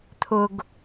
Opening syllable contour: low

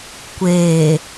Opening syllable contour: low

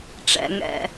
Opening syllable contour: low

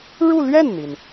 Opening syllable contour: falling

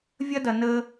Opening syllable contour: high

